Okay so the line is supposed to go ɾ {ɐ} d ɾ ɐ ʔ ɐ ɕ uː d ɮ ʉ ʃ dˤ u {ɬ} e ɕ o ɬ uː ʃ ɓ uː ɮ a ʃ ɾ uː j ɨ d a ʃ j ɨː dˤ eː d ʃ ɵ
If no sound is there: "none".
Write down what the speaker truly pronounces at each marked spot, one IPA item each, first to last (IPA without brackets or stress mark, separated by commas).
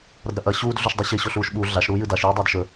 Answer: ɐ, ɕ